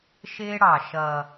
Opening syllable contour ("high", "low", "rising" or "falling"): high